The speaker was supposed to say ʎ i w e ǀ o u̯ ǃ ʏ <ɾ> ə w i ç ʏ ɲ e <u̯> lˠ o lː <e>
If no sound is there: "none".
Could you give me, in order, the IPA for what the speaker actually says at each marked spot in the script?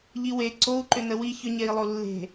n, i̯, e̤

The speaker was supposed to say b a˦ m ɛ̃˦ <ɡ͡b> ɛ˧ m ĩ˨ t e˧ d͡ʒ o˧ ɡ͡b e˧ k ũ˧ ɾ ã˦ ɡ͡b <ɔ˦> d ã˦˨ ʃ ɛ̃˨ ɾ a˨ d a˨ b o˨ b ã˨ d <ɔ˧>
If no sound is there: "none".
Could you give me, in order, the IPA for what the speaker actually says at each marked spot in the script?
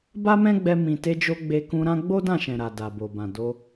ɡ͡b, o˦, o˧

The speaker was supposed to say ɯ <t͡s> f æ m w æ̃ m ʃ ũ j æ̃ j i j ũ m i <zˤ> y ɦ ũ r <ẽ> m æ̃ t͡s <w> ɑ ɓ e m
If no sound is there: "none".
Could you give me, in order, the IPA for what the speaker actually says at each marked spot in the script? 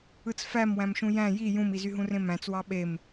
t͡s, z, ẽ, w

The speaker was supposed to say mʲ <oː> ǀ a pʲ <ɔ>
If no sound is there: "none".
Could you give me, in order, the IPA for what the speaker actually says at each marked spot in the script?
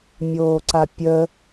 oː, ə

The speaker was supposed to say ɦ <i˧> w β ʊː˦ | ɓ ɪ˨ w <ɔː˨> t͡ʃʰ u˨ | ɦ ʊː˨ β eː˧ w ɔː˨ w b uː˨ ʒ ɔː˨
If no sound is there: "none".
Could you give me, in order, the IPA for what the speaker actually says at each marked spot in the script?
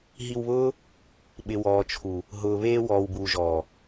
i˧, ɔː˨

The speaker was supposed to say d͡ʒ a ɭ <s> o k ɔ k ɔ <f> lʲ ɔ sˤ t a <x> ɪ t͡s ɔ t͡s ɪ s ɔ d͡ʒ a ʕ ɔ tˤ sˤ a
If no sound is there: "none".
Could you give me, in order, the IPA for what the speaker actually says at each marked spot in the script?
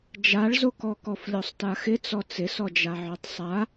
z, f, x

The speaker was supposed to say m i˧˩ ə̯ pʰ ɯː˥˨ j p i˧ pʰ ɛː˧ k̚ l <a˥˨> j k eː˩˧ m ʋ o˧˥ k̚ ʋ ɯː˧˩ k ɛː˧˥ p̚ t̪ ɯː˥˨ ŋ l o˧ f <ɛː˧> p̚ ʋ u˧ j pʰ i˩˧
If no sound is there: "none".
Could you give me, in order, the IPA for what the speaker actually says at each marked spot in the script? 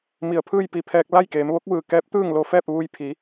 a˥˨, ɛː˥˨

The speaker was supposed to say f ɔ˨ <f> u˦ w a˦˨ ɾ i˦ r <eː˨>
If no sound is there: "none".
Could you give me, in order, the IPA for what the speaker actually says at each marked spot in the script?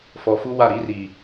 f, iː˨

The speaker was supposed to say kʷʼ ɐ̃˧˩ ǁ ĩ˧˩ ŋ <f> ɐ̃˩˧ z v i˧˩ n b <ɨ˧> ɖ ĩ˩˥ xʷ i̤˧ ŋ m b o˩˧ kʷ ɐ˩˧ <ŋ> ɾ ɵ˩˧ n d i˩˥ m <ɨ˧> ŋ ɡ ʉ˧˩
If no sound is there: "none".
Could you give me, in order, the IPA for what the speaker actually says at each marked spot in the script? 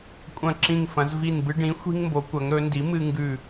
f, ɨ˧, ŋ, ɨ˧

